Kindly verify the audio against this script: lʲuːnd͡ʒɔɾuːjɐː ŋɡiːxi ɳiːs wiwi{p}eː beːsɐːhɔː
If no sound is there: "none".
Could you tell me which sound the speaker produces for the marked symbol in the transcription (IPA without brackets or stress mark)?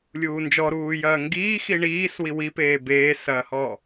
p